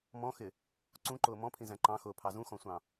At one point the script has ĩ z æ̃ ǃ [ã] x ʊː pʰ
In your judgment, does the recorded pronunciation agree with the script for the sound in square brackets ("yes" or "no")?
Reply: no